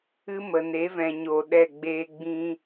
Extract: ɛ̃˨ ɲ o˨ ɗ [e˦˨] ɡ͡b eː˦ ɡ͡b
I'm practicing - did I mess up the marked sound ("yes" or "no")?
yes